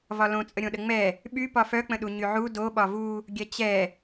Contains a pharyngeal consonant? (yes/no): yes